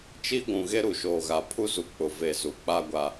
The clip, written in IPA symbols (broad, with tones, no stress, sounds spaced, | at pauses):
t͡ʃ i˦ ɡʷ ũ˨ ɣ e˦ ɾ u˨ ʃ oː˨ ɣ a˨ pʰ u˦ z u˨ k͡p ʊ˨ v e˨ z u˨ k͡p a˦ ɡʷ a˦